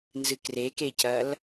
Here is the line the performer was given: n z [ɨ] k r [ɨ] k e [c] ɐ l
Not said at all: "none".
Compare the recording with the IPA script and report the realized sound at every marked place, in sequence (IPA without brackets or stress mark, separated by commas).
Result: ɨ, e, c